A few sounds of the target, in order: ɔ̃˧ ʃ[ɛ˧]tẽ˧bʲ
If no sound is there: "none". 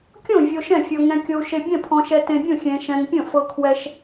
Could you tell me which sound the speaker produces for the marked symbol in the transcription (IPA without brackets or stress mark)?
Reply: ɛ˧